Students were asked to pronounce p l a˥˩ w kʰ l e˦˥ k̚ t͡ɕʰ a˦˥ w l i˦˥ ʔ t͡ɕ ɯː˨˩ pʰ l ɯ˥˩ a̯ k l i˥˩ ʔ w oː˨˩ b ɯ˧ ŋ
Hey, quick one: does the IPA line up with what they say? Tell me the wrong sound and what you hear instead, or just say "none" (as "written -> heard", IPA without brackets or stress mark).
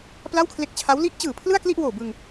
none